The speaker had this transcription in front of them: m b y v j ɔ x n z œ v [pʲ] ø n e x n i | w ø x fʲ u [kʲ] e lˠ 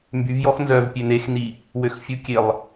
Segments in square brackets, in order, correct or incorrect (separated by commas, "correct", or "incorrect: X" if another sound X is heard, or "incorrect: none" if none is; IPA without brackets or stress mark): correct, correct